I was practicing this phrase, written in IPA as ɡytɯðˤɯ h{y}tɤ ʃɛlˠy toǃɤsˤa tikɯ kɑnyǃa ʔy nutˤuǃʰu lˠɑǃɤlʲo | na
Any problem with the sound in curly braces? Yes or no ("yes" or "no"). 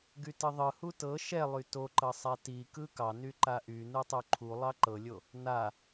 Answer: yes